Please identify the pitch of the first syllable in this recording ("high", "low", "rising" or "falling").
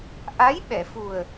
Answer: rising